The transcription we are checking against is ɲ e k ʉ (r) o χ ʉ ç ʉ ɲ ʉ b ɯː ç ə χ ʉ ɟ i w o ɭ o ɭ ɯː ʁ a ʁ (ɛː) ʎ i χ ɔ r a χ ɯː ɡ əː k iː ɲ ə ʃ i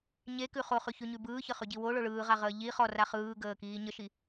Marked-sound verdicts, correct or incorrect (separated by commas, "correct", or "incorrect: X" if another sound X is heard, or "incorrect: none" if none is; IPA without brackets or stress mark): incorrect: χ, incorrect: əː